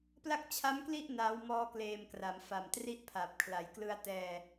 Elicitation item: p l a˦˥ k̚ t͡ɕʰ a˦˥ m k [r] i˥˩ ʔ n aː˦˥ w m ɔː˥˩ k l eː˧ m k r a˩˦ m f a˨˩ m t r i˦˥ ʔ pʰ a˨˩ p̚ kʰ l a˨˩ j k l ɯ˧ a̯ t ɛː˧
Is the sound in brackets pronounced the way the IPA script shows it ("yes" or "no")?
no